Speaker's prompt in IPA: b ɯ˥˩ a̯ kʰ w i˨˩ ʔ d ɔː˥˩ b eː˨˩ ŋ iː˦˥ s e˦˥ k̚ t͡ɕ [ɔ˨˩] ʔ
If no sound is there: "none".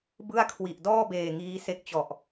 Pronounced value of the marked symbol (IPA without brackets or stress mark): ɔ˨˩